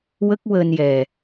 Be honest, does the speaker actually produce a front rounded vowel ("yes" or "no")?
no